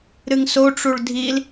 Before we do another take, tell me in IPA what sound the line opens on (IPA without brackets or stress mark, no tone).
ɾ